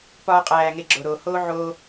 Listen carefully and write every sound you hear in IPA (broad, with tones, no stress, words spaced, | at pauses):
pɒː˧qʼæː˨ ŋe˧ɡ͡ǁo˨ɾoː˨ hoː˦ʕoː˧